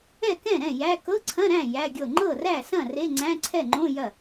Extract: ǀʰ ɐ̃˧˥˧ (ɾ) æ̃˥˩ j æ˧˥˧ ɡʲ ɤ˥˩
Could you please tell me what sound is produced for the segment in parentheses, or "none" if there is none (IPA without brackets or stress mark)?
ɾ